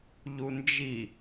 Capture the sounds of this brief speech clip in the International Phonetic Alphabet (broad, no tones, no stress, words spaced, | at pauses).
ʎund͡ʒi